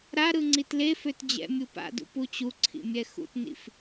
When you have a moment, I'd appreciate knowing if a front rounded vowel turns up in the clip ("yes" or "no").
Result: yes